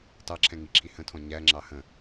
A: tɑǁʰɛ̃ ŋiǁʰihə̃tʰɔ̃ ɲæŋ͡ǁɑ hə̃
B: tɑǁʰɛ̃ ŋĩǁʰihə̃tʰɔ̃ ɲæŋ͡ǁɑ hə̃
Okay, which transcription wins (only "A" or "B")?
A